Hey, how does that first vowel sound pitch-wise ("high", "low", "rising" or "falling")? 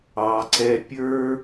low